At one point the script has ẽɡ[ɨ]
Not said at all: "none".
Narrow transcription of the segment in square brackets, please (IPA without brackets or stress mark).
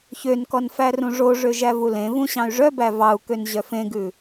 ʉ